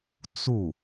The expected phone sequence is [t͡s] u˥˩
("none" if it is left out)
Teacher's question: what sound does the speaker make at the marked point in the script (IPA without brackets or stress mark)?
t͡s